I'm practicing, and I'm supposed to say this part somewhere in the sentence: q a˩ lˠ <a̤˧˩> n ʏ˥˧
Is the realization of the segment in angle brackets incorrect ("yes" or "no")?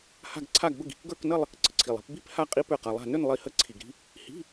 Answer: no